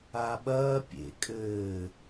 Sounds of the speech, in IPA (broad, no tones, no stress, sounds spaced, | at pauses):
a ɓ ɐː pʲ ḛ kʼ ɘː